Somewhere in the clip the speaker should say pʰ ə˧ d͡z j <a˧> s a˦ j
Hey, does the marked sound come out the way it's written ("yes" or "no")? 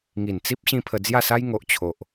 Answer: no